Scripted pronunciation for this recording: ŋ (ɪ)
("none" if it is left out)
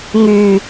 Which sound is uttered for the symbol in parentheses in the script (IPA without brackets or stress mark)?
y